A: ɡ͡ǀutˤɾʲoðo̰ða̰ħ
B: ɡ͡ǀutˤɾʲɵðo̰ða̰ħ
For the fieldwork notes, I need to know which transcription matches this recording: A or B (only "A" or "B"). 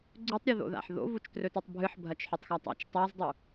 A